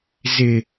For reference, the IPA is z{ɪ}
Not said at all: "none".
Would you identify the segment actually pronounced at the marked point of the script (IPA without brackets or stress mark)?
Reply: ɪ